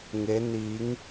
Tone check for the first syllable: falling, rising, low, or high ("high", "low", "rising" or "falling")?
rising